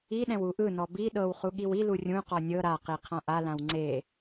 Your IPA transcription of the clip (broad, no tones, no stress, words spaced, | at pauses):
iɗɛ̃w uʔɯnɔ bi ɗɤwχu ɠiwilu rʲũqɔ nʲɤ ɾaqi qʰãʔalãw ŋ͡ǀe